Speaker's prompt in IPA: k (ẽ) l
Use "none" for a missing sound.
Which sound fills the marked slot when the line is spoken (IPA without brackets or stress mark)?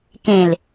ẽ